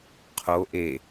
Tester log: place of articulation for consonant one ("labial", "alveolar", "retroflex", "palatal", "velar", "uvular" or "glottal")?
uvular